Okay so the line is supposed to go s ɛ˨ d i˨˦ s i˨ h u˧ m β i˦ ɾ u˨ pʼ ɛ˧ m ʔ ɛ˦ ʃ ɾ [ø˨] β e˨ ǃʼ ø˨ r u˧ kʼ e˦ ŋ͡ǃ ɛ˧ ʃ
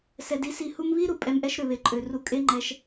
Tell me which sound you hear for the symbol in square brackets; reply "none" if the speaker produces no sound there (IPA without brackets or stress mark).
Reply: ø˨